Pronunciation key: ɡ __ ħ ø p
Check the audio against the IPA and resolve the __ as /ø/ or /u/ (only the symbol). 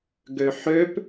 ø